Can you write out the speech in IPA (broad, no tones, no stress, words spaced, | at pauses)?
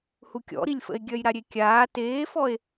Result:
hukʲɔ̰ɾilʲfə̰e̯ ɡʲœjɾaɾʲekʲaː teːfɔe̯